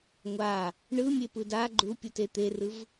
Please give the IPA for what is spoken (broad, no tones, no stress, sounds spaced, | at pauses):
ŋʷ a | ɳ ɯ mʲ e p ɯ d a ɡ͡ǃ u pʲ u t e t̪ e r ɯ v